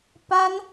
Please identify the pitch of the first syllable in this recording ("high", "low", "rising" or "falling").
high